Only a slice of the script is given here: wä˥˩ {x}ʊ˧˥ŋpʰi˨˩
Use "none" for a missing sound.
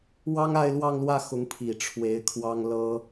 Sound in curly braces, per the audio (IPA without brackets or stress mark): x